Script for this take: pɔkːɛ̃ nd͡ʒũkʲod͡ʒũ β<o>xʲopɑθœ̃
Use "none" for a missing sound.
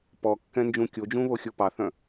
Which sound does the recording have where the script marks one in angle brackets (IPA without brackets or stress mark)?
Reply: o